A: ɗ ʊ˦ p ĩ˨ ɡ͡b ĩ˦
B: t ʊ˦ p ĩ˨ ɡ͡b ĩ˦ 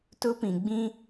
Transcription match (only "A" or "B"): B